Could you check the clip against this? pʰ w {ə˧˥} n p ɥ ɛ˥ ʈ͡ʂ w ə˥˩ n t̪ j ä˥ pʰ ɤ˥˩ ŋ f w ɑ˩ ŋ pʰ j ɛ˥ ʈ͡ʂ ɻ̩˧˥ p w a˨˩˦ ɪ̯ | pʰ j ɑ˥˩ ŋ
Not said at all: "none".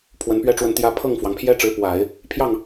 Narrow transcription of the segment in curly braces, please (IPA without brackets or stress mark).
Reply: ə˧˥